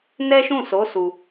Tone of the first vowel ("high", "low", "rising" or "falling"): high